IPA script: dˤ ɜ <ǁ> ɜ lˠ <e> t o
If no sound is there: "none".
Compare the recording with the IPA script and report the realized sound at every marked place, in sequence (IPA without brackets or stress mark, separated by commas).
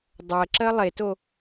ǁ, e